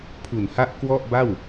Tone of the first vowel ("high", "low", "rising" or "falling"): low